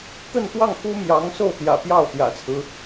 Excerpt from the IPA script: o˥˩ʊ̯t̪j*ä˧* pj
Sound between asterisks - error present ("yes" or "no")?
yes